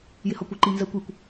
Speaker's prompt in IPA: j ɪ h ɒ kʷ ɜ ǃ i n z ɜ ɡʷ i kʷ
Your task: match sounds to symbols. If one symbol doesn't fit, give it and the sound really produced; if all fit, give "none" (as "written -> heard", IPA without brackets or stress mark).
ɡʷ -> kʷ